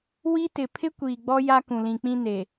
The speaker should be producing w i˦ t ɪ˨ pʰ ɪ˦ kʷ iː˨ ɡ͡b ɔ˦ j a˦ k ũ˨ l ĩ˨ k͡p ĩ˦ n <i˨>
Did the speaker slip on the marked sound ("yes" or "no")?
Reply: yes